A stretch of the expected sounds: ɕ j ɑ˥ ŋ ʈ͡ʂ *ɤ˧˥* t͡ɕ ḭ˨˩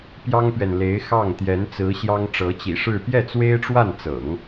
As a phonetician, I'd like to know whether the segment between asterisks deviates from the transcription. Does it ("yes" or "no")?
no